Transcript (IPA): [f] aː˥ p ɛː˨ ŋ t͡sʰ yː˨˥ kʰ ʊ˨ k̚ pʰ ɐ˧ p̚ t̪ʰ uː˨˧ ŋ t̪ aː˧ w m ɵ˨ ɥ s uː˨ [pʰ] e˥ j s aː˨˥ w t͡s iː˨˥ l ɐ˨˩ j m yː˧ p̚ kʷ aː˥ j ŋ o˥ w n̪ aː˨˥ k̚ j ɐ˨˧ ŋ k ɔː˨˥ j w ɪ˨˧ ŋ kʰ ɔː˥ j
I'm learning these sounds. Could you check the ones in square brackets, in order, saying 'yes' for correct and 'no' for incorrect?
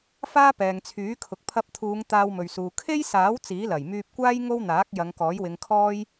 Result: yes, no

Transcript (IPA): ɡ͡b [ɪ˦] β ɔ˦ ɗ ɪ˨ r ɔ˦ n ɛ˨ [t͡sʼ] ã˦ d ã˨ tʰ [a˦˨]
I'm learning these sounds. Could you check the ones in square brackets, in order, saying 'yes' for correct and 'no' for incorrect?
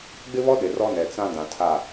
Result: yes, no, yes

